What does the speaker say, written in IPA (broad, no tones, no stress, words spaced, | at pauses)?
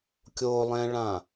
kʲolˠɛ̃ɭã